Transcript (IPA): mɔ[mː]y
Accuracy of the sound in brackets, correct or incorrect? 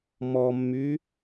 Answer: correct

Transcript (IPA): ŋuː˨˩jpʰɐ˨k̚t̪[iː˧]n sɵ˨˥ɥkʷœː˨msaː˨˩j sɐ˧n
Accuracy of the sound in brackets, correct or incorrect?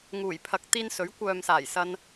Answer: correct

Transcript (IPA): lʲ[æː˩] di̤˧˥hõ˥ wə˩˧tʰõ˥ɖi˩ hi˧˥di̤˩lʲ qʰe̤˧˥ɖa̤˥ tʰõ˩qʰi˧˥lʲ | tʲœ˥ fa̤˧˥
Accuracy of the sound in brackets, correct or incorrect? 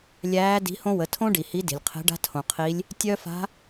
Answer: incorrect: æː˧˥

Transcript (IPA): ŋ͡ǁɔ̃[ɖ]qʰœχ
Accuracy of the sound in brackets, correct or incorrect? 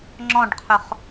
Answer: correct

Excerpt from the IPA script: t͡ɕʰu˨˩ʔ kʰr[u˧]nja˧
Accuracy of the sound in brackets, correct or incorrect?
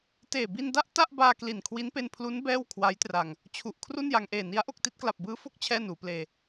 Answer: incorrect: u˥˩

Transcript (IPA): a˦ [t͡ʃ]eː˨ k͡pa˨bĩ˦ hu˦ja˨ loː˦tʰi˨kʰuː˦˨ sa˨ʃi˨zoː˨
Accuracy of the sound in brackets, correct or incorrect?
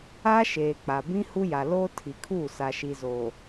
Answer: incorrect: ʃ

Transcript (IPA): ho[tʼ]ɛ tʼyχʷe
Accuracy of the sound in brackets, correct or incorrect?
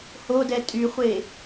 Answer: incorrect: d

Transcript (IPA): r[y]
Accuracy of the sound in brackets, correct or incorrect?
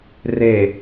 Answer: incorrect: e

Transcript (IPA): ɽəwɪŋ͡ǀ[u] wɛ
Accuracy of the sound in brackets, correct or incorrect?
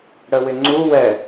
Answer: correct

